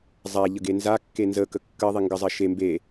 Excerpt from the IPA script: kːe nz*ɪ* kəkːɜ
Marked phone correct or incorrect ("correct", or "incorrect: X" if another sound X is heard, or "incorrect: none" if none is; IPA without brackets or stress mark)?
incorrect: ə